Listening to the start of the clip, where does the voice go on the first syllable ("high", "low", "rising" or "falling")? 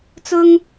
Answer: high